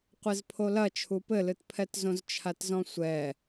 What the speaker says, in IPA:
qʷezpʰolɐt͡ʃʰu pɘlɨtpʰɛtzõz t͡ʃʰatzɔ̃sʷɛ

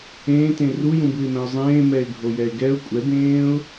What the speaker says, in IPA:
ẽːtẽ rujũbɯɪ̯mɛ̃ʊ̯ zˤẽː mɛɪ̯ɡʱojɛɪ̯ɡɛʊ̯ kʷʼɛbẽːʊ̯

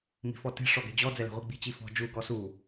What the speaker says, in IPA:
mi̤fɔte̤ ʂɔɡɛ̤d͡ʑɔ d͡zɛlɛ̤ʁʷiɡ͡bi̤ t͡ɕifɔ̤ d͡ʒu ɡɔsu

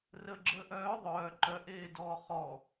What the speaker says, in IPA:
rəːɡ͡ǁəːʔœː ðˤœː ǃœʔeː dɔːχɔ

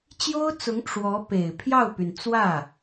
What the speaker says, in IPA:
t͡ɕjo˥ʊ̯t͡sʊ˧˥ŋ ʈ͡ʂwɔ˧˥pe˨˩ɪ̯ pʰjɑ˥˩ʊ̯py˩n t͡swä˥˩

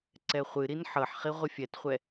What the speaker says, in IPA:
ǀɛχʷɨɾin ħɤħχi ʁʷɪfʲɛtχʷɛ

